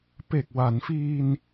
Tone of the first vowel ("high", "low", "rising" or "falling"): low